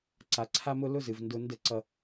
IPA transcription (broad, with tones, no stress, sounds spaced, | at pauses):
ǀ a˨ ǀʰ a˦ m ʊ˦ l ʊ˦ z ɨ˨ v n d ʊ˦ n d ə˦˨ ǀ ʌ˦